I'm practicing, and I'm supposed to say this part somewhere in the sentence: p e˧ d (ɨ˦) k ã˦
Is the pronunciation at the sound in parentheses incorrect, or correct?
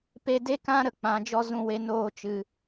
incorrect